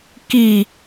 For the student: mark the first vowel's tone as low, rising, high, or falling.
low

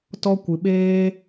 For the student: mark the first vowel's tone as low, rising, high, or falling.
high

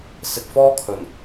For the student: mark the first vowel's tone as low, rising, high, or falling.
low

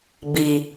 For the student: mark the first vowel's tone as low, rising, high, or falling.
low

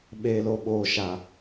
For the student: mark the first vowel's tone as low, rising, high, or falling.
low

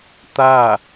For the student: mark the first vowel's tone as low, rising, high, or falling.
falling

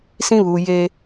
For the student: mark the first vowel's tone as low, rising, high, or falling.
high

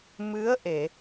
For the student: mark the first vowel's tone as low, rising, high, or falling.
rising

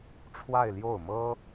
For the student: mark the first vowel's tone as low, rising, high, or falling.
falling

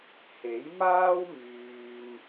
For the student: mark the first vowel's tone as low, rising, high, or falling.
rising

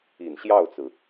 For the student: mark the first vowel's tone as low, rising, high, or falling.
low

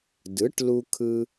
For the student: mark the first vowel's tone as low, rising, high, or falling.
rising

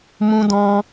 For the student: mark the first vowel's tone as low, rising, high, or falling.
high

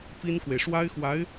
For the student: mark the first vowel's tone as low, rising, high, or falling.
high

